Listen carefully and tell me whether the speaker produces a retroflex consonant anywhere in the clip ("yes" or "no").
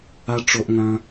yes